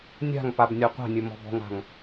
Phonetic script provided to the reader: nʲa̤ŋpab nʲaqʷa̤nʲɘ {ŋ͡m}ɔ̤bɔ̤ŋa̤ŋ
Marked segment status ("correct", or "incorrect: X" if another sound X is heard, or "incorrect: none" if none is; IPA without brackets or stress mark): incorrect: m